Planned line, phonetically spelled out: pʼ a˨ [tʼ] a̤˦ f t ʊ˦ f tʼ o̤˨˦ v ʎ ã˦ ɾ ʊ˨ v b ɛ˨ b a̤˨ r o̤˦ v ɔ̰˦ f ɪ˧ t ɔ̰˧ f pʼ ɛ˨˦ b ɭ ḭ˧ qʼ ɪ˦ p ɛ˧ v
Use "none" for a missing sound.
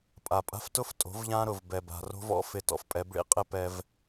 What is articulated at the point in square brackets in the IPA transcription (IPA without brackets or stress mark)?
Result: pʼ